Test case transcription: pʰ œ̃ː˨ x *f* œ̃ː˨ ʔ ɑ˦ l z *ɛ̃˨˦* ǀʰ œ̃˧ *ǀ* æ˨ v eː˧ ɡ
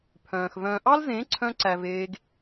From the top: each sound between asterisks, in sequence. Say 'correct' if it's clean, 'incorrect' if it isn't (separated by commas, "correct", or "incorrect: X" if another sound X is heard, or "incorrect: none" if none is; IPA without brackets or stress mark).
incorrect: v, incorrect: ẽ˨˦, correct